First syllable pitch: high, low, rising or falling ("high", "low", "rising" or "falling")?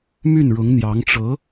falling